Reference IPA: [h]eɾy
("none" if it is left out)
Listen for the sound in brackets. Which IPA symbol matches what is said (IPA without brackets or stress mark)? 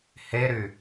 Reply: h